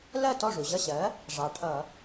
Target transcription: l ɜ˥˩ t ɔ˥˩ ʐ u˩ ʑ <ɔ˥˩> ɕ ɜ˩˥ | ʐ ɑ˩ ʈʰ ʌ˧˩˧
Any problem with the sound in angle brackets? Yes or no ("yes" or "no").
yes